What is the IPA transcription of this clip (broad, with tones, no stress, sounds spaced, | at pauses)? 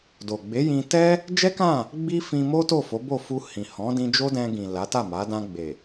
d o˨ ɡ͡b e˨˦ j ĩ˧ t ɛ˦ | d͡ʒ ɛ˦ k ã˦˨ | ɡ͡b i˦ f ĩ˧ m o˦ t o˦˨ f o˨˦ b o˦˨ f u˧ h ĩ˨ h ɔ̃˨˦ d ĩ˧ d͡ʒ o˦ d ɛ̃˧ ɡ ĩ˨ l a˨˦ t a˦˨ m a˨˦ d ã˧ ɡ͡b e˨